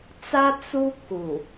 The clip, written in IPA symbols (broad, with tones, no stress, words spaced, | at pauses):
t͡sa˦ t͡su˦ ku˨